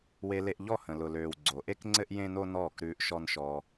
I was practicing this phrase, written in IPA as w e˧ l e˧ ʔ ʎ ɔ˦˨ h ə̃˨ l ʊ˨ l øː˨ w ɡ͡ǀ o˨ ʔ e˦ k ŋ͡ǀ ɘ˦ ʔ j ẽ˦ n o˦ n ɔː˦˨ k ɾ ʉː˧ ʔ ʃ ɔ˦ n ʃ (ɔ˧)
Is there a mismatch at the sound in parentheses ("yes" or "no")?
yes